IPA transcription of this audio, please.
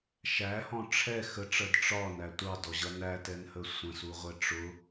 ʃ æ h ɔ̃ ʈ͡ʂʰ ɛ x ə ʈ͡ʂ ɜ d ʈ͡ʂ ɒ n æ tʷ ɑ d ɔ ʑ ʌ n æ t ɛ n h ə sʷ ə̃ s u ʁʷ ɛ ʈ͡ʂ ʊ

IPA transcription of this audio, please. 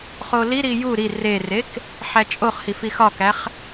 χ o l i ɾ i j u ɾ i r e r e k | ħ æ t͡ʃʼ o χ h i f i x ɒ k æ χ

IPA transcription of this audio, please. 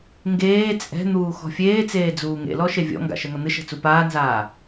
ŋ ɡ eː t͡sʼ ɛ̤ n̪ uː x ɔ̤ fʲ eː t͡s eː d͡z uː ŋ ḛ l ɔ ʃ e vʲ ɔ̰ ŋ ɡ a̰ ʃ ɛ ŋ ɐ n̪ ɨ ʃ ɛ̤ t͡s u p aː n z aː

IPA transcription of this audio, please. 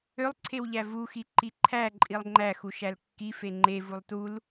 ø lˠ ǀʰ e w ʎ æ v u x i ǃ i ǃʰ æ ǃʼ i lˠ ŋ͡ǃ æ x u ʃ æ l kː i f e ŋ͡ǃ e v u lˠ t u l

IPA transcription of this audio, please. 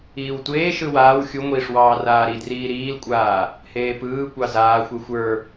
iː w tʷ eː ʃ ɯ w aː w xʲ u ŋʷ iː ʂ w ɑː r aː ɾ i d r iː ɾ iː l kʷʼ aː | h eː p ɯː kʷ ɑ z aː xʷ e xʷ ə˞

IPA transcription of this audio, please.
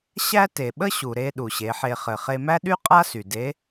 ɕ æ˥ t e˩ ɓ ə˥ ɕ u˩ ɾ e˧ ɗ u˩ ɕ e˩˧ ħ e˧ χ ɘ˩ χ e˧ m æ˥ ɗ y˥ qʼ a˥ s y˩ d e˧˥

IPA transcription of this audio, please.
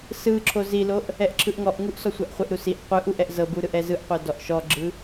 s ɯ ǁʰ o z i l o ʔ | ɛ ʔ ǁʰ ɯ ʔ ŋ ɔ ʔ ŋ u ʔ s ɔ sʷ a ʔ χʷ ɛ ʔ ɾ u s i ʔ qʷ ɯ ʔ u ʔ ɛ ʔ z ɤ b u ɾ ɯ ʔ ɛ z ɯ ʔ qʷ ɤ d ɔ ʔ ʃ ɔ ɡ͡ǁ ɯ

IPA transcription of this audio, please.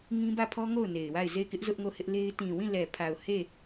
ŋ ĩ˦ b ä˦˨ pʰ ɔ˦ ŋ o˦˨ ʊ̯ n e˨ ɪ̯ w a˦˨ ɪ̯ z e˦˨ ɪ̯ k ɪ˦ ʔ z ʊ˦ ʔ ŋ o˦˨ h ɪ˦ ʔ l e˦ ɪ̯ t ĩ˨ w ĩ˦˨ l ɛ˨ pʰ a˨ ʊ̯ h e˦˨

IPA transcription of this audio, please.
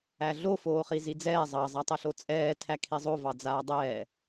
æ ɮ o f oː χ i z i d͡z ɛː zˤ ɑ zˤ a tˤ ɛ ɬ o t͡sʼ ɛː tʰ æ kʰ i zˤ o v ɑ d͡z aː dˤ ɛː

